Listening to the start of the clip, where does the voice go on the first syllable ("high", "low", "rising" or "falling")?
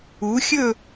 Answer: rising